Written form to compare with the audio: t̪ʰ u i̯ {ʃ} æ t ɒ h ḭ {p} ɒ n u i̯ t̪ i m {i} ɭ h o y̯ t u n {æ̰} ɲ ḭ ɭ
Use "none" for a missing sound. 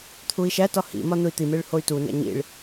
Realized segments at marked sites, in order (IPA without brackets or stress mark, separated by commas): ʃ, m, e, æ̰